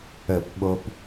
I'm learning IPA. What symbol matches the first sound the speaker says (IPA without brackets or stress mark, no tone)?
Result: ə